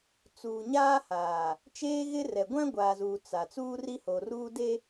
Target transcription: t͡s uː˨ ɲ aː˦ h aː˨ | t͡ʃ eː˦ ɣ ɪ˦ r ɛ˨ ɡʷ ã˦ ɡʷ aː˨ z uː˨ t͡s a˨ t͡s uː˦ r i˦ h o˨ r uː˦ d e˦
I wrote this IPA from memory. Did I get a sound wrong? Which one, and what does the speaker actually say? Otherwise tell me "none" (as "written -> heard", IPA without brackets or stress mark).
none